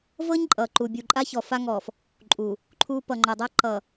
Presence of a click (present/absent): present